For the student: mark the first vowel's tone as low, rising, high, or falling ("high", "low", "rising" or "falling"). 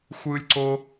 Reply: high